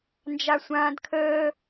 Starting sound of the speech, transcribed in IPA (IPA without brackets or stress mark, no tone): n